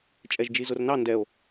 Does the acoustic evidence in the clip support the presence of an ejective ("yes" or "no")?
yes